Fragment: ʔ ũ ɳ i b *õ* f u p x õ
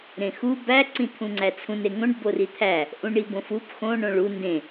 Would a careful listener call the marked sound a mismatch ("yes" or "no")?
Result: no